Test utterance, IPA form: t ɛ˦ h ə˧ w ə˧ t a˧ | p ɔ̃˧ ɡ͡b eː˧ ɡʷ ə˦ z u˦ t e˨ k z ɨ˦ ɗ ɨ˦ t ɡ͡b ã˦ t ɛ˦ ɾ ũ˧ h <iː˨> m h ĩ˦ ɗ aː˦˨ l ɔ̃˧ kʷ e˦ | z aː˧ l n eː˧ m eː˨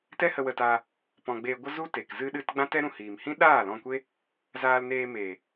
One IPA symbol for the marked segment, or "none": iː˨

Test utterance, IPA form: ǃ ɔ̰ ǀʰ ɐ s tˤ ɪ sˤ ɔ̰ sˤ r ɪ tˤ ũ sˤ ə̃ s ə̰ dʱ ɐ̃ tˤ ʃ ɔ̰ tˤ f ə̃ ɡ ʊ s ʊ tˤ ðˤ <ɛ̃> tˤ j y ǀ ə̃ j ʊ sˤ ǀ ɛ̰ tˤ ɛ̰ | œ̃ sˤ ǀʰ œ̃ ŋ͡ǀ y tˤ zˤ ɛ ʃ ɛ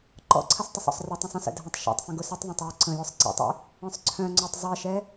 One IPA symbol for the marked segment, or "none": œ̃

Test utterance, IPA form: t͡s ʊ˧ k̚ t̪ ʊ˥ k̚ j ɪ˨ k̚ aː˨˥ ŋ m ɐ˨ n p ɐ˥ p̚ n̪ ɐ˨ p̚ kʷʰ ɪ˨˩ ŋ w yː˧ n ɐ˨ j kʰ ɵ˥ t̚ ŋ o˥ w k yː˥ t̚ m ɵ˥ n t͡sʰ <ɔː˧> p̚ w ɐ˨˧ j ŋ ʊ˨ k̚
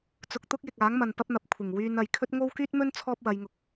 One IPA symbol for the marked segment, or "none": ɔː˥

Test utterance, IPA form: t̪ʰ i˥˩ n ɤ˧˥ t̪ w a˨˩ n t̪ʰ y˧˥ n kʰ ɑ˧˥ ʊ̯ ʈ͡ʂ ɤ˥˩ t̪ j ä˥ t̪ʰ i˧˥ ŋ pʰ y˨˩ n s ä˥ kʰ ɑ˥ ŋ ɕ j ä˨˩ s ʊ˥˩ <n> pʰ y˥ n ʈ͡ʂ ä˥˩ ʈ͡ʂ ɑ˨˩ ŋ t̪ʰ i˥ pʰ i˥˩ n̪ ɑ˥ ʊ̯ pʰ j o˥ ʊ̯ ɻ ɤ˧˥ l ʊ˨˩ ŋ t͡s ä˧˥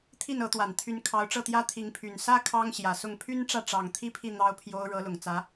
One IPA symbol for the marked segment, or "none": ŋ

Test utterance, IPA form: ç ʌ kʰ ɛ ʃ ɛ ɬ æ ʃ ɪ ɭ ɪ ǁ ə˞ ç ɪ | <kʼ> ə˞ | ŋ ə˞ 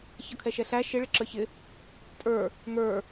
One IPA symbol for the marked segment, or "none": tʼ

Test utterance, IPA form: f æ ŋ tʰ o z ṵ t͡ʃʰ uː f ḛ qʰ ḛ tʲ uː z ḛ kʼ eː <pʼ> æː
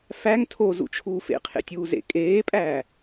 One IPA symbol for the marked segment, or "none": pʼ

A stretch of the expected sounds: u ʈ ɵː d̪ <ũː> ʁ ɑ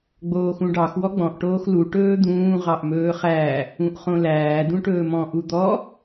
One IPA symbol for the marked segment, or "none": ũː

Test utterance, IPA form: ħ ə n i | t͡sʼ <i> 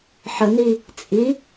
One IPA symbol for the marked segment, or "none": i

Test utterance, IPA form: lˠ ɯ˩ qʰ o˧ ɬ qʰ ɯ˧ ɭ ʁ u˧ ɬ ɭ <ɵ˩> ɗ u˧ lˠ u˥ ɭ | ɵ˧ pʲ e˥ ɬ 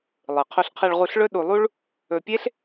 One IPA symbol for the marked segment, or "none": ɵ˥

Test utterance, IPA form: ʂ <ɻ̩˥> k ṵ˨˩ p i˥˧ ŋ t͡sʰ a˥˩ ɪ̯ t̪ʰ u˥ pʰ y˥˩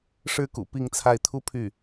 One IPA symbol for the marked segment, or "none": ɻ̩˥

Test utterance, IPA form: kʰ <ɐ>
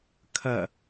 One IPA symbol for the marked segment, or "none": ɐ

